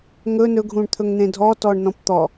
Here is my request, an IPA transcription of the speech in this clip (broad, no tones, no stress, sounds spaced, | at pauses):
ŋ ɵ n ɵ ɡʱ ũ ɳ t̪ʰ ɵ ŋ n̪ ẽ dʱ ɔ t ɔ ɳ n ɔ̃ p t̪ ɔ